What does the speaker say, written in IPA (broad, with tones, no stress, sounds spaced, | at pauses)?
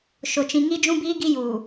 ʃ ʊ˨ t͡ʃ ĩ˨ ŋ i˦ d͡ʒ ũ˦ b iː˦ ɡ i˦ j uː˨